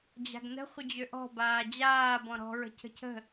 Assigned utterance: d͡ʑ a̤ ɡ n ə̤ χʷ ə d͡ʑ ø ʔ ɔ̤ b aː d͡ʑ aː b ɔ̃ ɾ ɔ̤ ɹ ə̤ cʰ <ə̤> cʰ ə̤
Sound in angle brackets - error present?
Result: no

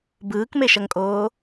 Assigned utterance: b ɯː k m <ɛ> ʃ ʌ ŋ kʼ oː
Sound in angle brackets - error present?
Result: yes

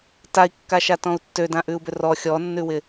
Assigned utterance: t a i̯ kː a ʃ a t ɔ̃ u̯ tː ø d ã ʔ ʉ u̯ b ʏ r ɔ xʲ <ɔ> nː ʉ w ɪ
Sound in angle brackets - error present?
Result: no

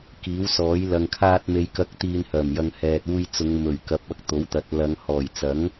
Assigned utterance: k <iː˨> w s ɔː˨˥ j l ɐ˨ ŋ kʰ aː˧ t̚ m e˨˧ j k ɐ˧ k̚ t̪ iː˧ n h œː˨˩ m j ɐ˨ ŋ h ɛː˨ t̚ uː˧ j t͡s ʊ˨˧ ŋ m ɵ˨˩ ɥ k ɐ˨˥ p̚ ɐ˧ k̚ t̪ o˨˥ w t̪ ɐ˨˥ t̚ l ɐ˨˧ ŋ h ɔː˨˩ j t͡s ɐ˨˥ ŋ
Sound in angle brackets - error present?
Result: yes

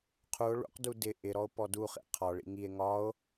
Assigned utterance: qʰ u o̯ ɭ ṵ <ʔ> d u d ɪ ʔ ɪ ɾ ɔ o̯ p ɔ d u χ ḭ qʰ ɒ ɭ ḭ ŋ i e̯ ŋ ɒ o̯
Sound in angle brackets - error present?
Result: yes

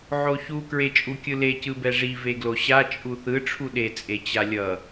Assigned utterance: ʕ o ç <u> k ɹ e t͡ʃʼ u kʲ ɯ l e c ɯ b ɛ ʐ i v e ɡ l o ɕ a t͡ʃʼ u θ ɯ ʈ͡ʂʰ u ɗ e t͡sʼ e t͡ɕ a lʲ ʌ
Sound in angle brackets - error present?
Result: no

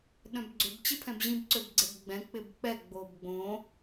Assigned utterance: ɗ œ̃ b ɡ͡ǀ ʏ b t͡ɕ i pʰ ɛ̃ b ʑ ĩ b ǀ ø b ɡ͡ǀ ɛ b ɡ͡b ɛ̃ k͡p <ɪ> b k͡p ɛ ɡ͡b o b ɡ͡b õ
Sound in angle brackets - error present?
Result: no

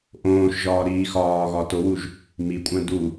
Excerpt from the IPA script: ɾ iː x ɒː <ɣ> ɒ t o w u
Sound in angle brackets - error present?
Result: no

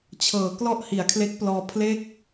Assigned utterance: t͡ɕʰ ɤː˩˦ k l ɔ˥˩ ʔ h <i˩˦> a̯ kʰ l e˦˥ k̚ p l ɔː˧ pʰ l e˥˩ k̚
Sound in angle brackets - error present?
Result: no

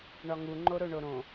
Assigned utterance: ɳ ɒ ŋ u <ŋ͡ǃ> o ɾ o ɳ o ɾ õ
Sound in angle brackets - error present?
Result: no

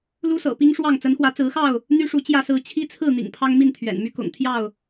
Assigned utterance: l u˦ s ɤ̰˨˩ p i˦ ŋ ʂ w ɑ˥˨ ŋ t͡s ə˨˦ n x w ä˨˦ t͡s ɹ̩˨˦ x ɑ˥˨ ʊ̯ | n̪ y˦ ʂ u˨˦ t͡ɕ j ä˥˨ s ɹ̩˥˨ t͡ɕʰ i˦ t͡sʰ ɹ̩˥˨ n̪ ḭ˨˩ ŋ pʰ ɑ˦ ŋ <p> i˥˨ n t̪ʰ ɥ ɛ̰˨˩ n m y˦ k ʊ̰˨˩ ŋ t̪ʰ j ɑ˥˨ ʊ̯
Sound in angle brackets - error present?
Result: yes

